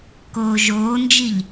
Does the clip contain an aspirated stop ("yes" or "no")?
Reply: no